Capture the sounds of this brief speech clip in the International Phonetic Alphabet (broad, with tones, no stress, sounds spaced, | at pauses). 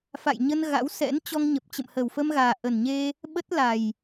f a̰˧˨ j ɲ ə˧ n ɣ a̰˧˥ w s ɛ̰˧˥ n t͡ɕ ɔ˧ ŋ ɲ ə˨˩ p̚ t͡ɕ ə̰˧˨ m h ə˨˩ w f ə˧ m ɣ aː˨˩ ʔ ə˨˩ n ɲ e˧ | ɓ ə˦˥ t̚ l a˨˩ j